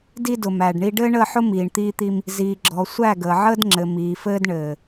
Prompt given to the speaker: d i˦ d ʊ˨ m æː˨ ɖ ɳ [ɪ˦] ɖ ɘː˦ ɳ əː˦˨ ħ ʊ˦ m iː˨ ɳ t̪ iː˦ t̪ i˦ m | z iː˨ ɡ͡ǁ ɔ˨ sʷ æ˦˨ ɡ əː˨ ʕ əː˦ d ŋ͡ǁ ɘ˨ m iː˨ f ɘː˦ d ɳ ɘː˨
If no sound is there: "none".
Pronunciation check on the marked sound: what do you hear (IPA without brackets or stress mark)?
i˦